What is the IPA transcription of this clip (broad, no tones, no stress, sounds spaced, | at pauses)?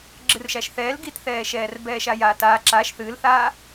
ɡ͡ǁ ɨ r ʃ a ʃ θ ɛː l ɡ i t θ ɛː ʃ ɛː r b ɛː ʃ a j aː t aː ǁ a ʃ θ ɨː l θ aː